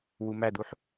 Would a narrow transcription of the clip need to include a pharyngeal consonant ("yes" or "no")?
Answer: yes